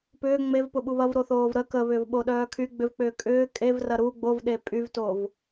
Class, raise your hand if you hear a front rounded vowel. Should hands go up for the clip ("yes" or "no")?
yes